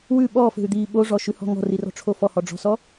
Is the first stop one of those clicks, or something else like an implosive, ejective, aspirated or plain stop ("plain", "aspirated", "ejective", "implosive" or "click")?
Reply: implosive